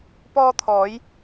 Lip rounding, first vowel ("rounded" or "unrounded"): rounded